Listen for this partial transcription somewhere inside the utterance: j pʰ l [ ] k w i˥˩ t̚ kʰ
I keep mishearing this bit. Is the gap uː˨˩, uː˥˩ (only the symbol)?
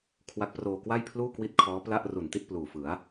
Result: uː˥˩